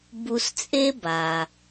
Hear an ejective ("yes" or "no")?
yes